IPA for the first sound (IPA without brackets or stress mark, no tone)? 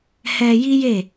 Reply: h